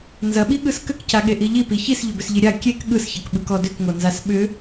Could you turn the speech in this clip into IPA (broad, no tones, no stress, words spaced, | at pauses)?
nzɐɓiɠɯs kʏkcaɠeʔi ʎipi çisʎʏbʏsʎi ɾʲa kʲek ɠɯsçɐkɓɯkɔ dʏkŋonzas ɓʏ